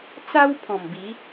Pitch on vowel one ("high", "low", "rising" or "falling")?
high